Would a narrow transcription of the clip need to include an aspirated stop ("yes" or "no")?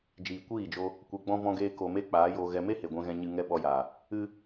no